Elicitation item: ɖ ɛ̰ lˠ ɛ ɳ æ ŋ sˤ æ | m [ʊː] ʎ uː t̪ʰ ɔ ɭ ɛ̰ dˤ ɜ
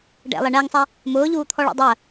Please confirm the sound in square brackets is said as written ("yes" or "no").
yes